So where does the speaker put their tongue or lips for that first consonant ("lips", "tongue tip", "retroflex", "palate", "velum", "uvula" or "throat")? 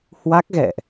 throat